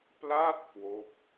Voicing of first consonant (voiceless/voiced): voiceless